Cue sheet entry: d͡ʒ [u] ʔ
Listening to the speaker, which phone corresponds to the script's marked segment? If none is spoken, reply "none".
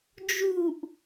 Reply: u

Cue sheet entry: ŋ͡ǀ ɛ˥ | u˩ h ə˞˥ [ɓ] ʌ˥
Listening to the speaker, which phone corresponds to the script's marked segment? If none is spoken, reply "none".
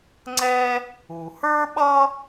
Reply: ɓ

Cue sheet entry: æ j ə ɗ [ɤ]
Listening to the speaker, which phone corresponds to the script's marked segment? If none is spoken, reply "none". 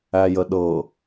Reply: ɤ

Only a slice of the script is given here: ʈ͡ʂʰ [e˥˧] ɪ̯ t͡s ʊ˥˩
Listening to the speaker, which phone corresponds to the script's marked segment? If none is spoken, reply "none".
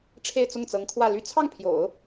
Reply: e˥˧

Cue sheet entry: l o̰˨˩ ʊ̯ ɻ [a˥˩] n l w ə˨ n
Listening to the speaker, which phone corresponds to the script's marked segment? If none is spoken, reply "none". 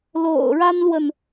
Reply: a˥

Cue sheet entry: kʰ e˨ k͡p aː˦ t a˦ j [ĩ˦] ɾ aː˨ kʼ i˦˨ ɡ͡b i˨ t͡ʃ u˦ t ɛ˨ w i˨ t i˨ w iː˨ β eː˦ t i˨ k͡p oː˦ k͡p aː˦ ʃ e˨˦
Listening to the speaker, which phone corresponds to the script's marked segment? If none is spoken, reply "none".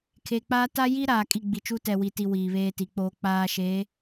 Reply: i˦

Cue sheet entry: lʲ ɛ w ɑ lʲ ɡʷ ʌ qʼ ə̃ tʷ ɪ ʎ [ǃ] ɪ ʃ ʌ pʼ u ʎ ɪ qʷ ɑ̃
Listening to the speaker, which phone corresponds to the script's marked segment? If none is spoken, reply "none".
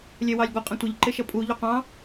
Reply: ǃ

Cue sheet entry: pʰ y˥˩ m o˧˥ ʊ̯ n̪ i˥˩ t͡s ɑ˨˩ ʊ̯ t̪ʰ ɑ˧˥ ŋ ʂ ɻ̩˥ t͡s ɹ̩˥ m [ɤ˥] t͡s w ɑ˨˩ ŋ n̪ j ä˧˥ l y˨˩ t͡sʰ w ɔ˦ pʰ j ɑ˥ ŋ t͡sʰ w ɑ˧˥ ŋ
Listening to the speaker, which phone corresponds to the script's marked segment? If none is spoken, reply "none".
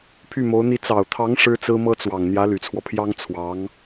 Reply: ɤ˥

